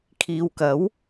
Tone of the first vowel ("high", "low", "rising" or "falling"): low